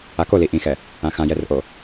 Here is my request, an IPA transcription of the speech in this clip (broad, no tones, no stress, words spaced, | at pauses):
akoli ʔĩxɛ | ãxãjɛrʔo